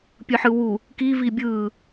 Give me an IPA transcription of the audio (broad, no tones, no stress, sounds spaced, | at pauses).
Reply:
pʲ ɯ ħ ɯ w u | k i v i bʲ ɯː